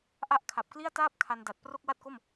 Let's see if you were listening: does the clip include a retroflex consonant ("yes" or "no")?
no